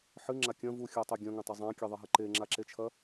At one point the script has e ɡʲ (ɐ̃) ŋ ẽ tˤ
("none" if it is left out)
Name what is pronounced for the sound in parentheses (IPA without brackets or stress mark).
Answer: ɐ̃